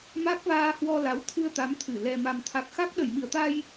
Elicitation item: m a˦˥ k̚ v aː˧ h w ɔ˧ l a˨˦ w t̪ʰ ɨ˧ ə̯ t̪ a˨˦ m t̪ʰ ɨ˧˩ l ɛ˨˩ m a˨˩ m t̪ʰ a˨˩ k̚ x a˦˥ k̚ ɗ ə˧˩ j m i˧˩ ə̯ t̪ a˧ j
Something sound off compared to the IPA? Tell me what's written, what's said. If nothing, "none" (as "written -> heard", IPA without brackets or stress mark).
none